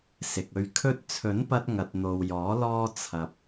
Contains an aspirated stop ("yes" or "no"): yes